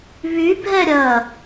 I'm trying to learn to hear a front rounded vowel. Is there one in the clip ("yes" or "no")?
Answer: yes